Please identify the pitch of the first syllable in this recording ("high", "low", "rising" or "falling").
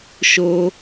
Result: high